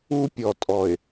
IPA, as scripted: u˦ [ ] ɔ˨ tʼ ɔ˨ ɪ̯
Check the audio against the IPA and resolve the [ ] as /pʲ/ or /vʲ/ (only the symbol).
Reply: pʲ